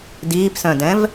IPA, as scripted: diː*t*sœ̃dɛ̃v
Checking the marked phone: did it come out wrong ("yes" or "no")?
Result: yes